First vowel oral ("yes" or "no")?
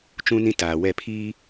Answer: no